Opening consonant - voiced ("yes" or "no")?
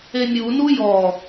yes